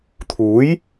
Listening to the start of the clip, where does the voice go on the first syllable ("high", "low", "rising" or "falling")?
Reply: rising